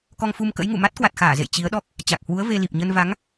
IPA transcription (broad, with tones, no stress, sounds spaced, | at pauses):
k ɔ˧ ŋ f u˧ m k ə̰˧˥ j ŋ ṵ˧˨ m a˦˥ t̚ k w a˨˩ t̚ x aː˧˩ z ḛ˧˨ j t͡ɕ i˨˦ ə̯ ɗ ɔ˦˥ k̚ | t͡ɕ a˨˩ k̚ h w u˨˦ ə̯ v e˧ l i˨˩ p̚ ɲ ə˧ n v a˨˦ ŋ